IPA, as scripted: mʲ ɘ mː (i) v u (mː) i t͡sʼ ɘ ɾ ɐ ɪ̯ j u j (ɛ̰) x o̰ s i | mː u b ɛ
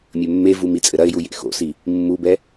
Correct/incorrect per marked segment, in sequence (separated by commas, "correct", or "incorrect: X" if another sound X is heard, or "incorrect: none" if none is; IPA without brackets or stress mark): incorrect: e, incorrect: m, incorrect: ḛ